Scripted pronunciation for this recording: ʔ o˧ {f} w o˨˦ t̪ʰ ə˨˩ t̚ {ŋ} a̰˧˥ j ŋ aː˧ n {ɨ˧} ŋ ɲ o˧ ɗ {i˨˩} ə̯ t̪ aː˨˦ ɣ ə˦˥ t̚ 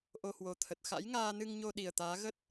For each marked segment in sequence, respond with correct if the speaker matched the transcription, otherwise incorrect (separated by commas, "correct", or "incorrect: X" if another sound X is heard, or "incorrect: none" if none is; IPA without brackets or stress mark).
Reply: incorrect: h, incorrect: x, correct, correct